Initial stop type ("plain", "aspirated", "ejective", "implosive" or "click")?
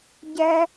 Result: plain